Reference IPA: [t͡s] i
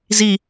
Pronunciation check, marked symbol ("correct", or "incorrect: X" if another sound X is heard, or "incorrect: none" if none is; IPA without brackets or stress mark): incorrect: z